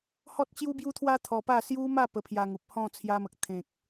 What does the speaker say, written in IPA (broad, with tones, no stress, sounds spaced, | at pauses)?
h ɔ˦ t̚ t͡ɕ j u˦ b j u˦ t̪ʰ w a˦ t̪ʰ ɔ˧ p a˥˧ s j u˦ m a˥˧ p ə˧ pʰ j a˧ ŋ u˨ p̚ h ɔ̃˥˧ t͡sʰ j a˧ m ə˨ k̚ t̪ʰ ẽ˨ k̚